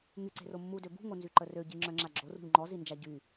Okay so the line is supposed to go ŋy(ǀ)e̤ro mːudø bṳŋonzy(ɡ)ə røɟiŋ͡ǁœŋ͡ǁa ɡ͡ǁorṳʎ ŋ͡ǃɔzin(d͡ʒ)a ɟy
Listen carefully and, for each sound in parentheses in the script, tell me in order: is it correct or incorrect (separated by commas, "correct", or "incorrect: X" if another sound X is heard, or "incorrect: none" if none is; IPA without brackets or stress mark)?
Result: correct, incorrect: ǃ, correct